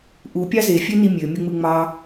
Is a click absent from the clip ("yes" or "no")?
yes